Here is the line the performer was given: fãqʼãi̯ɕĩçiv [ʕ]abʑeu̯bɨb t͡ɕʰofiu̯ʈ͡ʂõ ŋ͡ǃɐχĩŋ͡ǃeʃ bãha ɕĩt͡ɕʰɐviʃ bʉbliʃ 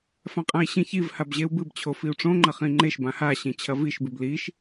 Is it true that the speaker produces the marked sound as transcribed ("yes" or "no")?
no